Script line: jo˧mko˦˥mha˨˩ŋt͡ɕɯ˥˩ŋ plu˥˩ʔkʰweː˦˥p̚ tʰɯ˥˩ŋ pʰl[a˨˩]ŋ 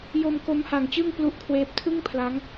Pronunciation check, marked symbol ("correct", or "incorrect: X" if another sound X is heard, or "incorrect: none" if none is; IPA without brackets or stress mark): incorrect: a˦˥